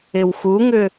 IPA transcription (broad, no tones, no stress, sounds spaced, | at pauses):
ɪ w x u ŋ ʏ